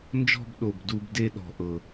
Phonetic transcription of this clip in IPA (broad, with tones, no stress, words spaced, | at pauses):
nd͡ʒɔ̤˥˧bɗo˨˩b du˥˧b de˥˧ɗɔ̤˨˩ ʔɤ˨˩